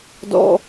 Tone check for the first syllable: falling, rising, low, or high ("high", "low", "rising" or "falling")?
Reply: high